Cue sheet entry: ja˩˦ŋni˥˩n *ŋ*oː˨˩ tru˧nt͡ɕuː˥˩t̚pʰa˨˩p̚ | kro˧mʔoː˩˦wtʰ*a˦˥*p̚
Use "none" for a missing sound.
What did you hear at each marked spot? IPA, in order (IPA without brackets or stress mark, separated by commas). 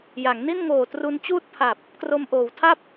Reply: ŋ, a˥˩